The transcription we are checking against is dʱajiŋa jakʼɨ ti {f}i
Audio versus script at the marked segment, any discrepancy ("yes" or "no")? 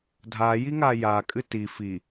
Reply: no